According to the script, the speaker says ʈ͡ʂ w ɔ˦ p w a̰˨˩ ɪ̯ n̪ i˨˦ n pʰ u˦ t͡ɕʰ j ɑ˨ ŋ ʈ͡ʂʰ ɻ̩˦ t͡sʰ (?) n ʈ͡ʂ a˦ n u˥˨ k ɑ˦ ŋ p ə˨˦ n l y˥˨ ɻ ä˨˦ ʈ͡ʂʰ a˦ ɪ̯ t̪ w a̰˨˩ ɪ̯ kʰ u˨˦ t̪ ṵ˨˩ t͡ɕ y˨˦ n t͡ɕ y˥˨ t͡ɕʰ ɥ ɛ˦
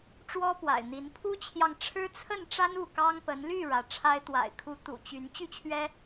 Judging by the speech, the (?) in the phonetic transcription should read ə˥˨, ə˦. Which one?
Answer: ə˥˨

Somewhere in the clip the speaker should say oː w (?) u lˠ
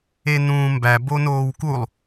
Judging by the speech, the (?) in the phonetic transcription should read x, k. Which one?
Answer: k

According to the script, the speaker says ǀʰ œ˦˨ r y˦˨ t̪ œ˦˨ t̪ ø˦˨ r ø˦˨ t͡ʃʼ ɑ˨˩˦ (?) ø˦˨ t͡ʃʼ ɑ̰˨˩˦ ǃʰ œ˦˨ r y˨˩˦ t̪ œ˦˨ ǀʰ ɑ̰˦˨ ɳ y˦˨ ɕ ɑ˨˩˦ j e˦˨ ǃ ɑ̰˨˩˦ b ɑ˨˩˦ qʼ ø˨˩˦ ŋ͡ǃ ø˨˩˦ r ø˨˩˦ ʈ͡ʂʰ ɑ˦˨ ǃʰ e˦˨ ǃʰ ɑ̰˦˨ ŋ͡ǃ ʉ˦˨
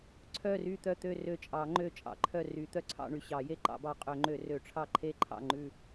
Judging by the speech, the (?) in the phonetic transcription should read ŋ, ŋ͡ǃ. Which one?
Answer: ŋ͡ǃ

